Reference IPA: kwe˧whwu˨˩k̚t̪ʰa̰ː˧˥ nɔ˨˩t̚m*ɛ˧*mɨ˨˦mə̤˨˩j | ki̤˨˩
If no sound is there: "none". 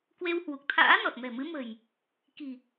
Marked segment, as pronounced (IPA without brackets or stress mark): ɛ̤˨˩